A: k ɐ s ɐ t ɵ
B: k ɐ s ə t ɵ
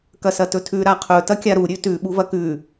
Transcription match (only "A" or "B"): A